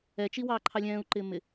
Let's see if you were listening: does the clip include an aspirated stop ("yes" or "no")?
yes